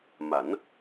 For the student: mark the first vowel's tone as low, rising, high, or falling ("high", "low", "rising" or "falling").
rising